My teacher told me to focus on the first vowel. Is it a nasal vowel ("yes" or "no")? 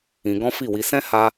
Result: yes